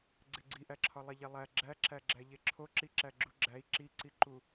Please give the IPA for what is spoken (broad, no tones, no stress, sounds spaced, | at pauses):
ɡ͡ǀ e ɡ͡ǀ i ʔ æ ǁʰ ɒ lˠ e ʎ e lˠ æ ɡ͡ǁ æ ǁ æ ɡ͡ǁ æ ʎ e ǁʰ o ǁ i ǁ æ ɡ͡ǁ u ɡ͡ǁ æ i̯ ǁ i ǀ i ǃ u